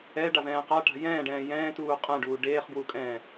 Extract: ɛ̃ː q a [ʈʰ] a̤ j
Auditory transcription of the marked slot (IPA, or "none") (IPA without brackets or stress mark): ʈ